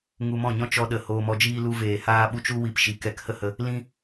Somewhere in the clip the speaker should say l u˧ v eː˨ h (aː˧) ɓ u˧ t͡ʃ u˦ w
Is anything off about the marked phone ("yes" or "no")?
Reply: no